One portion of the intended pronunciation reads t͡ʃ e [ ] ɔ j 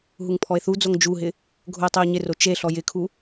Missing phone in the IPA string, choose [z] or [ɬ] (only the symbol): ɬ